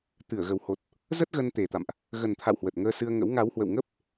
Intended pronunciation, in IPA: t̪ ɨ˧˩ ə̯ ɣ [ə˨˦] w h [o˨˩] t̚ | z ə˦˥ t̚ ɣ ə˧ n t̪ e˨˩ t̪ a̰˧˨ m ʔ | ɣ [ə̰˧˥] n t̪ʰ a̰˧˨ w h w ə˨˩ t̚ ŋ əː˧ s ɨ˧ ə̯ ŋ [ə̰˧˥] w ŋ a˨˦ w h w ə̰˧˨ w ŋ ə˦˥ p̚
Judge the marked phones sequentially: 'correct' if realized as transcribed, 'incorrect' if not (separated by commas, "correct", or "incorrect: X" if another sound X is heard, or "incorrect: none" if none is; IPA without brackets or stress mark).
incorrect: ə˨˩, correct, incorrect: ə˨˩, correct